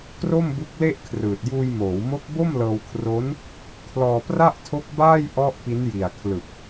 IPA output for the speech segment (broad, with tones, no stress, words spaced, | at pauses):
kro˥˩mbu˦˥k̚le˥˩ʔkʰrɯː˨˩t̚ juː˧jmoː˩˦wmo˦˥k̚bo˥˩m lɤː˧wkʰro˦˥n | kʰlɔː˧pra˥˩ʔtʰo˦˥k̚ baː˥˩jʔɔ˦˥ʔ pi˦˥nji˨˩a̯kʰlɯ˨˩k̚